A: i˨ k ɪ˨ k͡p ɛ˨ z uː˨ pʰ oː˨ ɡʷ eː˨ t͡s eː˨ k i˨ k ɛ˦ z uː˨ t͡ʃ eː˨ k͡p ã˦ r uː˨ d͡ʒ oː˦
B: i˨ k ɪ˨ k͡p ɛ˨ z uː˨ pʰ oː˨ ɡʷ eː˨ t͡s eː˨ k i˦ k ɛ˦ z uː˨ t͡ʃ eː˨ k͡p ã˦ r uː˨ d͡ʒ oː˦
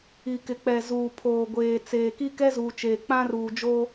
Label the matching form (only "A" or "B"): B